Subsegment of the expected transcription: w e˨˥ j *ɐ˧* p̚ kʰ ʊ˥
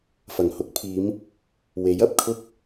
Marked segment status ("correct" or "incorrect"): incorrect